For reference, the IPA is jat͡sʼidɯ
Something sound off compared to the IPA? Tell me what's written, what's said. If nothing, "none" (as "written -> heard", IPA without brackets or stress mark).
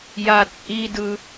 none